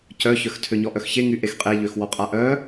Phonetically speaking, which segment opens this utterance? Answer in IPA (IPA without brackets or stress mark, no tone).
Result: c